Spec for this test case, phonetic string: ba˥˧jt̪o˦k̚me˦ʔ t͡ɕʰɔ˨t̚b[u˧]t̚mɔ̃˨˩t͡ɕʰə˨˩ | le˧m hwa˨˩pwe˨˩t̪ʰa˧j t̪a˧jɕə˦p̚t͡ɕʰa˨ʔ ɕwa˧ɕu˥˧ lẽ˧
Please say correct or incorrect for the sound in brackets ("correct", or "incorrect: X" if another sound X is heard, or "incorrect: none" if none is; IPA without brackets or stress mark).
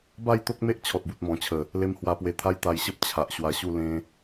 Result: incorrect: u˨